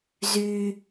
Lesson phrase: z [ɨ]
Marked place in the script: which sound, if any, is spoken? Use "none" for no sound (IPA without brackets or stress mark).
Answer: y